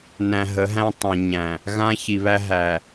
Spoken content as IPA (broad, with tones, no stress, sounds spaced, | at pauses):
n æ̃˨ ɦ ə˨˦ ɦ æ̃˦ tˤ ã˨ ɲ æ̃˨ | ɣ ã˦ ç i˨ β æ˦ ɦ æ˨